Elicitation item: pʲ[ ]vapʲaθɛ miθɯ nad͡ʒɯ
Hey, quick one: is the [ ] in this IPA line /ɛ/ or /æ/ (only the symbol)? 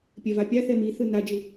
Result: ɛ